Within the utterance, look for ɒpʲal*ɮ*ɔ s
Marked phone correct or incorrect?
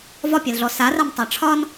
correct